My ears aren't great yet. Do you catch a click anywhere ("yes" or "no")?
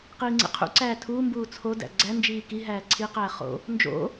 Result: yes